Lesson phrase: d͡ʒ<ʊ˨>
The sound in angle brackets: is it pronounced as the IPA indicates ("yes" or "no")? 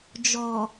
no